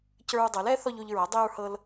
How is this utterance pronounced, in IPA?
c ə˞˦ ɹ dˤ ɤ˩˥ l ɛ˩˥ θ ɔ˦ ʎ o˦ ʎ ɹ ɐ˩˥ dˤ ɛ˦ ɹ h ɤ˦ l

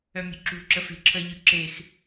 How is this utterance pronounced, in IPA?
œ mʲ ṳ ǁ ṳ ǁ ə f e̤ ǁʰ ə ʎ ʉ ǁ e x

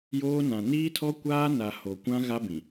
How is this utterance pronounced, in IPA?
j oː˦ n ã˨ n iː˦ tʰ ɔ˦ kʷ aː˦ n a˨ h o˨ kʷ ã˦ ɣ a˦ b ĩ˨

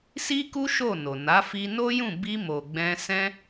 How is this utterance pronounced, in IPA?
s i˦ k u˦ ʃ o˦˨ n o˨ n a˨˦ f i˧ n o˦ j ũ˦˨ b i˧ m o˨ ɡ͡b ɛ̃˧ s ɛ̃˦

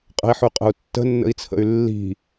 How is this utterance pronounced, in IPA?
qʼ ə̤ i̯ ħ ʉ qʼ ə̤ u̯ tː ə̤ nː ə̰ i̯ t͡sʰ ə̰ y̯ lː i̤

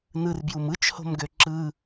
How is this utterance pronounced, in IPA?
n ɯ r b j u m ɯ t͡ʃ h o̤ m ɡ ø ǁ ɯ

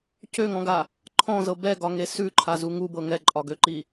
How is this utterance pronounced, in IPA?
c ø ŋ ɔ̃ ɡ a | ǃʰ ɔ̃ z ɤ b ɛ ɡ ɒ ŋ e s ʉ ǃʰ a z u ŋ u b ɤ ŋ ɛ ǃʼ ɒ ɡ ø ǃ i

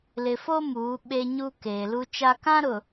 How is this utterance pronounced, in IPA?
l ɪ˨ f o˦ m uː˨˦ ɓ e˦ ɲ u˦ k eː˨ l u˦ t͡ʃ a˦ k ã˦ ɾ ʊ˨

